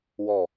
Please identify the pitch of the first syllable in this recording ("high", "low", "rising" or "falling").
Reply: falling